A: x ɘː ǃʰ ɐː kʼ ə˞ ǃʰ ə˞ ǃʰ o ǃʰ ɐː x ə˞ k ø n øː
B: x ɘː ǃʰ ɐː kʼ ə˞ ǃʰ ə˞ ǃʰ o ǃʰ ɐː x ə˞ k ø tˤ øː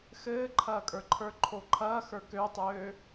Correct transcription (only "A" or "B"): B